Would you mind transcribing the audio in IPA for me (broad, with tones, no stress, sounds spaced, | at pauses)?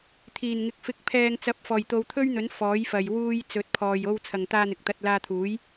t̪ʰ iː˨˩ n ŋ ɪ˨ k̚ f ɪ˨ k̚ pʰ ɛː˨ ŋ t͡s ɐ˨˥ p̚ f ɔː˨˩ j t̪ o˨˧ w t̪ʰ ɵ˥ ɥ n̪ ɵ˨˥ n f ɔː˨˥ j f ɐ˨ j w uː˧ j t͡s ɵ˨˥ t̚ pʰ ɔː˨ j o˧ w t͡sʰ ɐ˨ ŋ t̪ aː˧ n̪ ɪ˨ k̚ t̪ ɐ˧ t̚ l aː˧ t̪ʰ uː˨˥ j